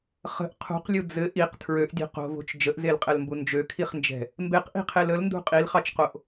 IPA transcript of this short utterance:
χə̤ʔ qʰṳqlʲu d͡zɘ ʔiq tʰɹøʔdʲɛ̤ qo̤vo̤t͡ʃ d͡ʒəʔzelqʼɛlmbu nd͡ʒøkʰiχnd͡ʒɛ̤ | mbeqʔi̤qʰel əlndṳ qʼilχɑt͡ʃqoʔ

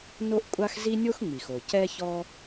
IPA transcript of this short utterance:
no˥ʔkʷʼa˥x zi˥nʲo˥x ŋ͡mi˩xo˩ cɛ˥çɔ˥

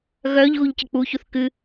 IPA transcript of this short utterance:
ɣœʎ ɣuʎcək͡puçuθ kɨ

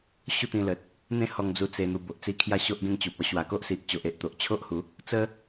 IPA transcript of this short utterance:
ɕu˥˧t̪ĩ˧lə˨t̚ | n̪ẽ˥˧hɔ˧ŋd͡zu˧ t͡se˧n̪u˧ bo˨ʔt͡si˦kʰja˥˧ ɕo˦ʔɡẽ˥˧ŋt͡ɕu˨p̚ɔ˦ ɕwa˨˩ko˦ʔsi˨ʔ t͡ɕo˨ʔe˨ʔ t̪o˨ʔt͡ɕʰo˦ʔhu˨˦ | t͡sə˦

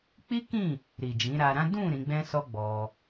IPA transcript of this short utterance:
k͡pi˦kĩ˦˨ | ɾi˨d͡ʒĩ˨˦ɾa˧ɾã˦ dũ˦˨ ɾĩ˨˦ɡ͡bɛ̃˦sɔ˦ɡ͡bɔ˧

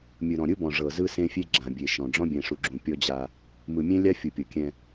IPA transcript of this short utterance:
mʲɯ˨ ɾɔ̃˨ɾʲɯ˦bɔ̃˨ ʐɤ˨zɯ˦ sẽ˦fʲe˦ ɡ͡ǁã˨bʲe˨ʃɔ̃˨ ɖ͡ʐɔ̃˦bʲɛ̃˨ʂu˨ɡ͡ǁũ˨ pʲɔ˦d͡ʑa˦ | mɯ˨mʲẽ˦lʲa˦ fʲu˨pʲɤ˨kʲɛ̃˦

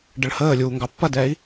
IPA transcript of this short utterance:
ɖəɭhəːlʲuː ŋɡɑpːɐdɛːi̯

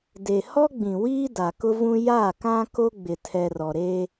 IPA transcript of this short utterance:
de˨hɔ˦ɡ͡bĩ˨wiː˦ da˨kʊ˦vũ˦ ja˦˨kã˦ ko˦ɡ͡bɪ˨tʰɛ˨rɔ˨ ɾe˦

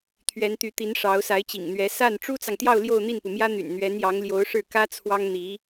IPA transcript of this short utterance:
t̪ʰɥɛ˧˥nt̪y˧˥t̪i˧˥n ʂɑ˧˥ʊ̯sa˧˥ɪ̯t͡ɕḭ˨˩ŋn̪ɥɛ˧˥ sa˥˩n ʈ͡ʂu˥t͡sɑ˨ŋt̪jɑ˥˧ʊ̯ ljo˥˧ʊ̯n̪i˥˩npu˩mjä˥ n̪y̰˨˩nn̪ɥɛ˧˥njɑ˧˥ŋljo˧˥ʊ̯ ʂɻ̩˥˩kä˥t͡sʰwɑ˥ŋn̪i˧˥

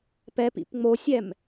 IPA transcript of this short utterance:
pɛpḭp ŋ͡mosʲɛm

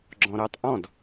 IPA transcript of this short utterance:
ɡ͡ǁɔ̃ɾəːtˤʔɔ̃d

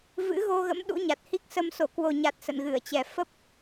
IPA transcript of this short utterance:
vɨ̰˧˥ɣo˧ɣə̰˧˥m ɗṵ˧˥ɲa˨˩t̚hi˦˥k̚sə˧m so˧˩kwo˨˩ɲa˨˩t̚ sə̰˧˨nɣɨ˧˩ə̯t͡ɕɛ˨˩ fə˦˥p̚

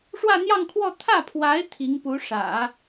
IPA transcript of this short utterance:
ʂwä˥˧n̪jɑ˥˧ŋkʰwɔ˥˧ t̪ʰä˥˩pʰwa˧˥ɪ̯ t̪ʰi˧˥ŋpu˧˥ ʂä̰˨˩˦

